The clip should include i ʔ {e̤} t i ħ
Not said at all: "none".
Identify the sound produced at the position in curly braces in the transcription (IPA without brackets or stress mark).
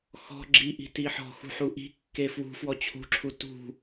i̤